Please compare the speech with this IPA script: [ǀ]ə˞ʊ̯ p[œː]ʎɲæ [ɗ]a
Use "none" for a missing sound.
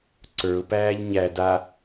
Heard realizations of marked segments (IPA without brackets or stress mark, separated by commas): ǀ, æː, d